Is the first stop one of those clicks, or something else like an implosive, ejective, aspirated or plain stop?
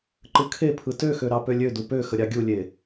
click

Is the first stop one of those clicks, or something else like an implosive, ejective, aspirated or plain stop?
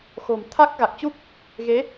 aspirated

